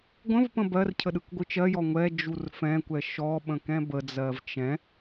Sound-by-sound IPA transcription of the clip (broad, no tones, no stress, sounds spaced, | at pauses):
ɡʷ ə̃ v p ə̃ b ɜ r cʰ ə ɗ ɯ k ɡʷ ɯ t͡ʃ ɜ j ɔ ŋʷ ɛ d͡ʒ u r f ɛ̃ kʷ ɛ ʃ ɔ ɓ ə̃ k ɛ̃ b ə d͡z ɜ v t͡ʃ ɛ̃